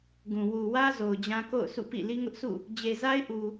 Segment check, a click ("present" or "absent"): absent